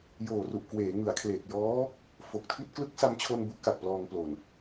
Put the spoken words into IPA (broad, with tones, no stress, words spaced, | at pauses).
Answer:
joː˨˩ru˨˩ʔkweː˩˦ ŋɯ˩˦a̯kʰleː˨˩k̚jɔː˦˥ | fo˨˩k̚tʰi˥˩t̚ klɯ˦˥k̚sa˧mt͡ɕʰo˧n bu˦˥ʔka˨˩k̚plɔː˧ŋ plo˨˩n